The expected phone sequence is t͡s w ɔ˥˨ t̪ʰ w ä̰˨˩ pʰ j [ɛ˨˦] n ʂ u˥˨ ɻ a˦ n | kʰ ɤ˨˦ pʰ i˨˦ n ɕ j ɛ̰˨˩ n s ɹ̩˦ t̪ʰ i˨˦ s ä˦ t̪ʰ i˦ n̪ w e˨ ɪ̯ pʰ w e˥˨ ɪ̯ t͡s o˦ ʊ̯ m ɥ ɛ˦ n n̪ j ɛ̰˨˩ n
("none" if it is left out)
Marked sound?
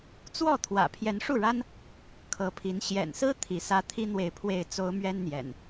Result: ɛ˨˦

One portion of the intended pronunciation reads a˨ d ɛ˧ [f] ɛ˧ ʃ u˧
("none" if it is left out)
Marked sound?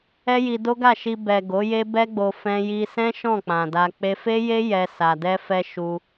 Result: f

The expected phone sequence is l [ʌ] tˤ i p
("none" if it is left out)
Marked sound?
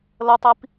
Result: ʌ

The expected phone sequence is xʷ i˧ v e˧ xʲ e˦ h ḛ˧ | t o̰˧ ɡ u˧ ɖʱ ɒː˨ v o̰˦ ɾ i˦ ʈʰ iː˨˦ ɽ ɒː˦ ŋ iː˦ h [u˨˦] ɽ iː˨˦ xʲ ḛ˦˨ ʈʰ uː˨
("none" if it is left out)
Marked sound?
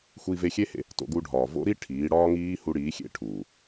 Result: u˧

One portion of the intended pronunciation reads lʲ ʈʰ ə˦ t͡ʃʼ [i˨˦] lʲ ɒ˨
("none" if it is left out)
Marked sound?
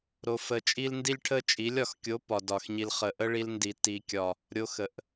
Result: i˨˦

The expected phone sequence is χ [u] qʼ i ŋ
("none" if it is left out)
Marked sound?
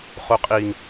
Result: u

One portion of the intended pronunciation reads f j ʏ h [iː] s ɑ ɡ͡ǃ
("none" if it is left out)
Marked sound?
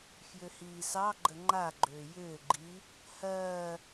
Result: iː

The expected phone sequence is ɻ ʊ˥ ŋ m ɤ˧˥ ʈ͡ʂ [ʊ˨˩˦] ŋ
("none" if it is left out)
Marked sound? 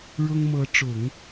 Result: ʊ˨˩˦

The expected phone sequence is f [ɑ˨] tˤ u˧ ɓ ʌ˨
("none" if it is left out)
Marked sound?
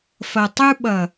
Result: ʌ˨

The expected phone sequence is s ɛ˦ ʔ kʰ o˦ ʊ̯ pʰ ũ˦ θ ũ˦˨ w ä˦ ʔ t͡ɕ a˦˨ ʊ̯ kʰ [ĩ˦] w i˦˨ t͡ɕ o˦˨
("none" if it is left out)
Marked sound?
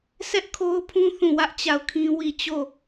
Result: ĩ˦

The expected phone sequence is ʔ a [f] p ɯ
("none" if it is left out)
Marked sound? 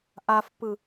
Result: f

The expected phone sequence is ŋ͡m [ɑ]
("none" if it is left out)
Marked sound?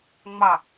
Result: ɑ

